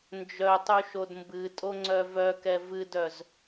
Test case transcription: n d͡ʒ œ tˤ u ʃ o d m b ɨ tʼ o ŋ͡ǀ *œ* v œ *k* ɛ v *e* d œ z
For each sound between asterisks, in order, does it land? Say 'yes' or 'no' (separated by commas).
yes, yes, no